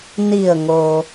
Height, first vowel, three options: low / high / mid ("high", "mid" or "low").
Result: high